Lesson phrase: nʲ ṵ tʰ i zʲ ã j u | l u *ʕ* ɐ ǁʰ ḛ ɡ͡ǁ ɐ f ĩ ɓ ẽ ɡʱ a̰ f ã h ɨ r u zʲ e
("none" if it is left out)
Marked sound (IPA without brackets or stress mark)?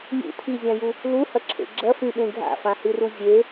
h